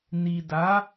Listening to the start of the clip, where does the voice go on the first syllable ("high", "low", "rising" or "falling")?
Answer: low